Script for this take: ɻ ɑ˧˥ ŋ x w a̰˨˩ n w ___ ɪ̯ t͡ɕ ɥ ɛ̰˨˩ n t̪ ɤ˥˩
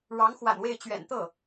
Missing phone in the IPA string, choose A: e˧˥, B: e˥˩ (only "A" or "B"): B